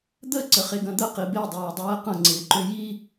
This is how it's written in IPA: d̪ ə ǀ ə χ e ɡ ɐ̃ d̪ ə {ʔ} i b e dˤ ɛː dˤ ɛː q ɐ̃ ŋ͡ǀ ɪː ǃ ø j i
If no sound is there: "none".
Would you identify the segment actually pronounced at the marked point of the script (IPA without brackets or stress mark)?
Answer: q